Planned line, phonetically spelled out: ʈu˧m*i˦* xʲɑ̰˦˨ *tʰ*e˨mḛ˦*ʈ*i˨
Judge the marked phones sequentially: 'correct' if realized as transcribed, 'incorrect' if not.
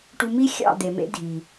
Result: correct, incorrect: d̪, incorrect: dʱ

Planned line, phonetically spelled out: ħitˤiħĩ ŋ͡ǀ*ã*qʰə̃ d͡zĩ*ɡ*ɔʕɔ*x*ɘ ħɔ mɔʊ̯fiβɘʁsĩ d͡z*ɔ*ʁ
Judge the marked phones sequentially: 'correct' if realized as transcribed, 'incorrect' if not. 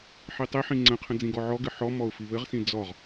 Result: incorrect: ə̃, correct, incorrect: ɡ, correct

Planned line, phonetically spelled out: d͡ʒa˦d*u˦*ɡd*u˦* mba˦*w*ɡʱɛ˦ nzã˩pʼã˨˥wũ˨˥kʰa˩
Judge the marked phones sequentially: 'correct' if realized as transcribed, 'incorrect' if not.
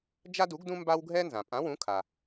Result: incorrect: u˨˥, incorrect: ũ˦, correct

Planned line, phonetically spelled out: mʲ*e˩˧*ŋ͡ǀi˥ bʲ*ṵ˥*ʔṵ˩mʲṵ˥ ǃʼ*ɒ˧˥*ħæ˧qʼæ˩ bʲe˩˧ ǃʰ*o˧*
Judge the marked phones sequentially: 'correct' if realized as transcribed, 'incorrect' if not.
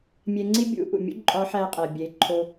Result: incorrect: e˧, incorrect: ṵ˧˥, correct, correct

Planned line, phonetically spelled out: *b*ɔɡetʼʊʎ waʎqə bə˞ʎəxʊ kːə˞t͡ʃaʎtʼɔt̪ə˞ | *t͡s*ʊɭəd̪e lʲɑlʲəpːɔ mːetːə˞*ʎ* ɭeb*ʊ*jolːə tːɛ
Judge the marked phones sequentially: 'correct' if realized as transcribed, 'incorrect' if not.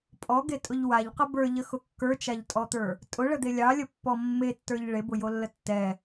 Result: incorrect: pʼ, incorrect: tʼ, correct, correct

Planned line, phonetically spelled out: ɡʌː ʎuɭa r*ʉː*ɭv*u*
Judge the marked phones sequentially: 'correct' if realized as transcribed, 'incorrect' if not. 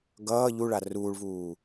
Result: incorrect: uː, incorrect: uː

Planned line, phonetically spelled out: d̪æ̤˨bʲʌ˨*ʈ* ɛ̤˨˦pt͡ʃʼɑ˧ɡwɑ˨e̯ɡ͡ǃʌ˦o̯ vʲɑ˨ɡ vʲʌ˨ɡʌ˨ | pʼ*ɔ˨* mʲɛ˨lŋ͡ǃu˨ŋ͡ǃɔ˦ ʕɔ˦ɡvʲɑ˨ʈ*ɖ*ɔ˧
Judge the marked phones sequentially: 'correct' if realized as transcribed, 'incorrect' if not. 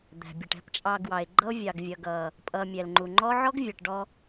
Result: correct, incorrect: ʌ˨, correct

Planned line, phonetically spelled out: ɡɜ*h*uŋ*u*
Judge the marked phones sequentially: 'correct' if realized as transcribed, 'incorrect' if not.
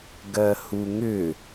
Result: correct, incorrect: ʏ

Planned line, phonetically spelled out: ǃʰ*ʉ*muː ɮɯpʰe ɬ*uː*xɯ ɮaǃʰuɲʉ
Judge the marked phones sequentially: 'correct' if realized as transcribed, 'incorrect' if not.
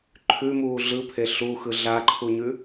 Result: correct, incorrect: u

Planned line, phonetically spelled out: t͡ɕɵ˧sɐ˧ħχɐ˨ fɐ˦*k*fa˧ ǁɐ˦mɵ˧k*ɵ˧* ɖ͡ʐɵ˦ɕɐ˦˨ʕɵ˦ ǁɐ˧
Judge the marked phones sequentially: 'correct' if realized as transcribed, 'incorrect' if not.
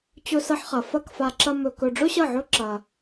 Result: correct, correct

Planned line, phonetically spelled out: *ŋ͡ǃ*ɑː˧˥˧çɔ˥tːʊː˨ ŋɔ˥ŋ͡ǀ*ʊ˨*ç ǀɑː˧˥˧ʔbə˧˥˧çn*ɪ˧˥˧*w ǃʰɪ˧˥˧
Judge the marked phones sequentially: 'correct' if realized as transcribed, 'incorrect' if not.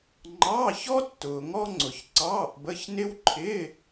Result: correct, correct, incorrect: ɪ˥

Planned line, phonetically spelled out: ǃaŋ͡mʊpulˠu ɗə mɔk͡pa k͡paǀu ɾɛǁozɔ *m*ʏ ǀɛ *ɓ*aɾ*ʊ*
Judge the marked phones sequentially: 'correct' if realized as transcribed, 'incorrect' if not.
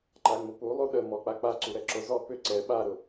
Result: incorrect: p, correct, correct

